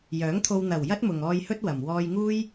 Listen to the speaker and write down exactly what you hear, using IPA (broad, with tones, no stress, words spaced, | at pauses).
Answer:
jœː˨˥ŋt̪ʰo˧w n̪ɐ˨˩wjɐ˥t̚mʊ˨ŋɔː˧j hɵ˥t̚wɐ˨m wɔː˧jŋuː˥j